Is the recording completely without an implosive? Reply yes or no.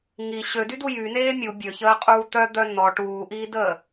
yes